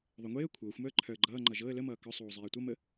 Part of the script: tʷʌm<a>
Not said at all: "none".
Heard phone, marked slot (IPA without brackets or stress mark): ə